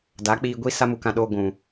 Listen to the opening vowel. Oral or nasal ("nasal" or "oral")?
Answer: oral